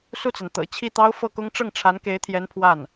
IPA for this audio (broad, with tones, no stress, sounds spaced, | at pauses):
s u˥˩ t͡s a˩ n t̪ ɤ̰˨˩ t͡ɕʰ i˥˩ t̪ ɑ˥ ʊ̯ f ɤ˥˩ k ʊ˥ ŋ ʈ͡ʂ ɤ˥˩ ŋ ʈ͡ʂʰ a˧˥ n k e˧˥ ɪ̯ t̪ʰ j ɛ˧˥ n pʰ w a˥˩ n